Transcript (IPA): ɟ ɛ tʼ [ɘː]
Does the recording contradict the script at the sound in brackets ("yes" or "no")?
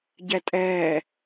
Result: yes